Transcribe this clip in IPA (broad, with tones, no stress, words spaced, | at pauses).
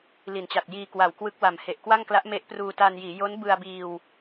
li˩˦nt͡ɕa˨˩t̚ jiː˧ kwa˨˩wkwɯ˦˥k̚wa˨˩m he˨˩ʔkwa˥˩ŋkla˦˥ʔ me˦˥ʔpruː˧ta˧njiː˩˦ jo˦˥nbɯ˧a̯biː˧w